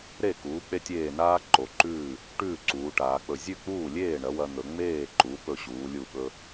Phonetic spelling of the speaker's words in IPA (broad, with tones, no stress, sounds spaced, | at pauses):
ɾ e˥˩ k uː˩˥ k͡p e˧ tʲ eː˧˩ n aː˧ ǃ o˩˧ ǃ ʉː˥˩ | ʈ ʉː˥˩ ǀ uː˩˧ ʈ aː˩˧ k͡p ɵ˧˩ zʲ ʉ˥˩ k͡p uː˥˩ lʲ eː˥˩ ɳ ɐ˩˥ w ɐ˧ n̪ ɵ˩˧ ŋ͡m eː˥˩ ǃ u˩˥ p ɵ˧˩ ɕ uː˩˧ lʲ u˧˩ ɓ ɵ˧